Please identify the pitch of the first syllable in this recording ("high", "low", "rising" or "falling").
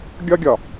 high